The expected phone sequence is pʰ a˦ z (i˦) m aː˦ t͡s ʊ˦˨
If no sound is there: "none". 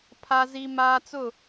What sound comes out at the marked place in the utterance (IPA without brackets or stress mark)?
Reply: i˦